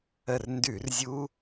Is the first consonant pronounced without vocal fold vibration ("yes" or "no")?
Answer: no